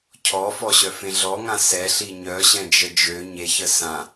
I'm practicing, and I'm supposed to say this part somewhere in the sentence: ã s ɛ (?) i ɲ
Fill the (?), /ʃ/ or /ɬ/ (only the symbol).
ɬ